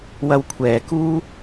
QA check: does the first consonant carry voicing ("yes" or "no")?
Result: yes